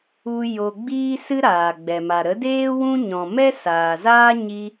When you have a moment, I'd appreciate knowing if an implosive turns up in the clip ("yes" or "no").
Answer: no